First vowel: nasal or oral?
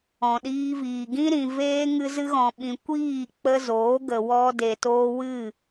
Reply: nasal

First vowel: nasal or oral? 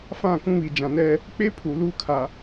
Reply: nasal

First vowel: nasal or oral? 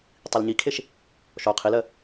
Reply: oral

